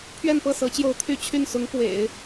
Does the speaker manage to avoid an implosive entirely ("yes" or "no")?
yes